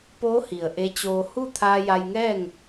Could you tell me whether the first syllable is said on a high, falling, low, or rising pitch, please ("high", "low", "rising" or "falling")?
rising